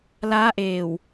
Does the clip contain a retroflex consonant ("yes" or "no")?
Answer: no